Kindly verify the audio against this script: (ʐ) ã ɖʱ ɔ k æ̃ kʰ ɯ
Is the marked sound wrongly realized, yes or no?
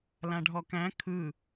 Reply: yes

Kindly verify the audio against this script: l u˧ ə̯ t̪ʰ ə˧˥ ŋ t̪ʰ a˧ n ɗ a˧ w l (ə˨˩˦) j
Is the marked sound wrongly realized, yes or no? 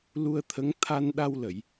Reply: yes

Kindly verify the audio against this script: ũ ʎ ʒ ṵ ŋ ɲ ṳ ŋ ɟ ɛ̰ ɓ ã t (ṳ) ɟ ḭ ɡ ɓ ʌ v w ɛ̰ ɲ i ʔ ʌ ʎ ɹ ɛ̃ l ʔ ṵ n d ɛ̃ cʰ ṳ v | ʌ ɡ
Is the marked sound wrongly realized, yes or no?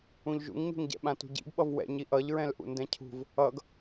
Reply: no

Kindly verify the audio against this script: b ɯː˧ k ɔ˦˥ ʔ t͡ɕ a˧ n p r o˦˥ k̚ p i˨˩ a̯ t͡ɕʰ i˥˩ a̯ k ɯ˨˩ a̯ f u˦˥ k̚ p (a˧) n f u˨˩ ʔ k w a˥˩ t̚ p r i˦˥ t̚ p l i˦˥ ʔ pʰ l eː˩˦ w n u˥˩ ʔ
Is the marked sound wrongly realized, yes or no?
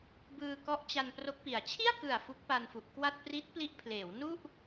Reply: no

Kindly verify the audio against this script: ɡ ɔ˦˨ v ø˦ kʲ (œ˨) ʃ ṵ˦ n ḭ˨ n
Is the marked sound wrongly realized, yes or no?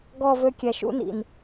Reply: yes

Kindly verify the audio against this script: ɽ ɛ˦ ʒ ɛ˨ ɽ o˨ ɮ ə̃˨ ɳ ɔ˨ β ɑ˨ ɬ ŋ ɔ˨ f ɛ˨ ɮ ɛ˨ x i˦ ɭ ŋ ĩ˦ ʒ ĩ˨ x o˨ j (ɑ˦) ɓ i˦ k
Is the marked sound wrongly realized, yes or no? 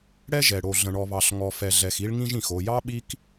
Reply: no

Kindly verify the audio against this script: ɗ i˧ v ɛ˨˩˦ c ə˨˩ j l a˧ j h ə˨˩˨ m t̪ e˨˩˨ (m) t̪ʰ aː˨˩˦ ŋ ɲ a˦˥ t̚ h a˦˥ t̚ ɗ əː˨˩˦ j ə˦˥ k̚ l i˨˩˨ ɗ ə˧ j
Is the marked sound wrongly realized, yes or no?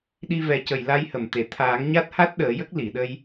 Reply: yes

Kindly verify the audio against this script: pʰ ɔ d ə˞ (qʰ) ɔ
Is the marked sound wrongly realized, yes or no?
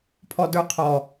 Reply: no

